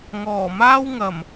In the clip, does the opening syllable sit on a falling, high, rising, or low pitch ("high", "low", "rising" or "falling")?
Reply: low